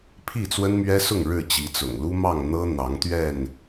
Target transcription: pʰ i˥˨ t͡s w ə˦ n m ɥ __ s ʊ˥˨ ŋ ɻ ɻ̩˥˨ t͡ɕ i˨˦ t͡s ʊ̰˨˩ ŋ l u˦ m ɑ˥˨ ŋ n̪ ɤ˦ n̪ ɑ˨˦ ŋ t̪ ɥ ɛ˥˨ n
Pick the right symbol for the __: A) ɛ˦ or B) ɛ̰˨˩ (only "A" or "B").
A